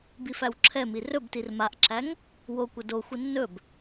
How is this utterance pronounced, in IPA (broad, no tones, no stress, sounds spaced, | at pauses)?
b i f æ w ǁʰ ɛ m i r ɵ b t i r m a ʔ ǁ æ ŋ | w o kʷ ə d o xʷ ə nː ɵ b